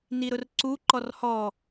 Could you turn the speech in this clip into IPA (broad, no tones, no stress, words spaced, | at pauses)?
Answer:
niɾʊrǀu ǃɔrhɔ